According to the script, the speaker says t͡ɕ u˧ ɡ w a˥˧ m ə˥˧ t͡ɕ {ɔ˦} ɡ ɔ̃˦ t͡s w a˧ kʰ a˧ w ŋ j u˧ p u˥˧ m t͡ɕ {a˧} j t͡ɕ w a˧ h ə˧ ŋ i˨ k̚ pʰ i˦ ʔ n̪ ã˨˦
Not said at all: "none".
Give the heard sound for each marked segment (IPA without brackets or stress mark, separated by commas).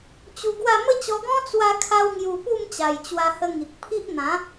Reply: ɔ˧, a˨˩